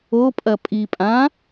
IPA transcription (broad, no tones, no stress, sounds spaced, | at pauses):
o pʼ ɐ pʼ i pʼ ã